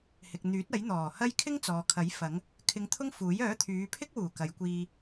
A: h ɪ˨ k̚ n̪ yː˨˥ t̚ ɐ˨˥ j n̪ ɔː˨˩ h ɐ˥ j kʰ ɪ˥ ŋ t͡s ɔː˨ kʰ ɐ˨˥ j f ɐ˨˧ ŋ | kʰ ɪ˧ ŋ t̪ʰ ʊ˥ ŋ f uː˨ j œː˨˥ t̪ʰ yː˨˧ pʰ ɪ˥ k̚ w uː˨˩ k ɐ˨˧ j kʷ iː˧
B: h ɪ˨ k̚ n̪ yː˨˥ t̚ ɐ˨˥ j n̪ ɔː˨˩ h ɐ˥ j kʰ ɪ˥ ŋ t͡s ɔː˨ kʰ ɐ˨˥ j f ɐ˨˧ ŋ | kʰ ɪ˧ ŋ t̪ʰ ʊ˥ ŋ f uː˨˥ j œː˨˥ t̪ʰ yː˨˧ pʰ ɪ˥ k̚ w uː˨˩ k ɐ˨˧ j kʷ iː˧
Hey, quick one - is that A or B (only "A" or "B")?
B